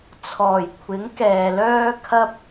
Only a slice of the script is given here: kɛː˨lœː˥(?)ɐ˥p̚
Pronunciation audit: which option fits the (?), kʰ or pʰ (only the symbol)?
kʰ